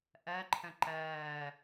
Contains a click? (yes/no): yes